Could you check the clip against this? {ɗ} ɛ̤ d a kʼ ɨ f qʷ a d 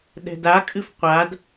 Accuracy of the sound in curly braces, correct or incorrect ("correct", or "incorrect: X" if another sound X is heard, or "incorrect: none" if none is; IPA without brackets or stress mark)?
correct